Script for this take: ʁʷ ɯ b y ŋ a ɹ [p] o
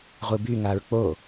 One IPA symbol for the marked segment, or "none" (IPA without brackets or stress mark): k͡p